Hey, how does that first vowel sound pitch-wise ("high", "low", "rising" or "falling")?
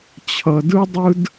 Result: low